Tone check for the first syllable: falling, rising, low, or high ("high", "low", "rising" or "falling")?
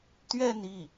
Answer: falling